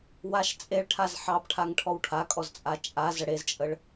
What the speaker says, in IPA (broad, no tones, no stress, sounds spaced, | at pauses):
w a ʃ t͡sʼ e ɭ ʈʰ a z ħ ɑ b ʈʰ a ŋ ʈʰ ɔ w ʈʰ a kʼ ɔ z t͡sʼ a t͡ʃʼ a z ə ɽ e z t͡ʃʼ ə ɭ